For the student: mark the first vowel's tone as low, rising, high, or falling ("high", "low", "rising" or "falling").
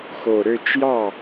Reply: low